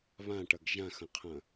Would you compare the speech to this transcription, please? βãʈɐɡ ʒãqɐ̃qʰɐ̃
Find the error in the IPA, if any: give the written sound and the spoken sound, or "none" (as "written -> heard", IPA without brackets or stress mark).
q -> x